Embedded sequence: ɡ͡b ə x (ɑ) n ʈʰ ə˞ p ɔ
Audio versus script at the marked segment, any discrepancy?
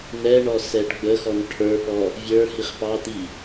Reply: yes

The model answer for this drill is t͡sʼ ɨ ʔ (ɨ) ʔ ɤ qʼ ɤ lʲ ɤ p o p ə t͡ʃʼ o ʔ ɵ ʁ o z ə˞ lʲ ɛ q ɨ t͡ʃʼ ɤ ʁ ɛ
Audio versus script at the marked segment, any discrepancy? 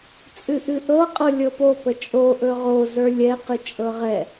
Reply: no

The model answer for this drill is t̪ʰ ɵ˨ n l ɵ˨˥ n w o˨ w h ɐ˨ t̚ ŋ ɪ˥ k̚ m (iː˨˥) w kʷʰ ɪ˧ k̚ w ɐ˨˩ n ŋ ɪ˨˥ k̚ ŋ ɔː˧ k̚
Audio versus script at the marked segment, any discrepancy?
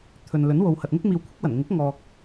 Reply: yes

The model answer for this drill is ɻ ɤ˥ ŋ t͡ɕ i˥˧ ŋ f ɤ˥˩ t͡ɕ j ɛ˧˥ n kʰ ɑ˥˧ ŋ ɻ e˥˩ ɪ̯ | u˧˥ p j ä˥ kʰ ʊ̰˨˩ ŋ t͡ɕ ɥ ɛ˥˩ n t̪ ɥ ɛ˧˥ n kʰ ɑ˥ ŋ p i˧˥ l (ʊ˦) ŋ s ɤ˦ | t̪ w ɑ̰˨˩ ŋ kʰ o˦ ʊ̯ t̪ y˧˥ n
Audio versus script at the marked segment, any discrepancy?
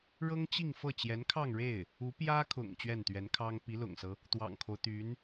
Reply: yes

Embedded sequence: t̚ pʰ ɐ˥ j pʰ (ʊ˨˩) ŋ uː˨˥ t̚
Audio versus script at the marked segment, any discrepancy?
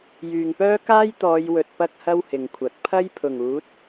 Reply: no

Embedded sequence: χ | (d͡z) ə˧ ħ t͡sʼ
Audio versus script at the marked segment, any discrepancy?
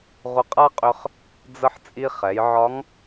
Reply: no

